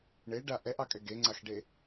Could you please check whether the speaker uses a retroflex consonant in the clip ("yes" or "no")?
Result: yes